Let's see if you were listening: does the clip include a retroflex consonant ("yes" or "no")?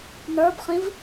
no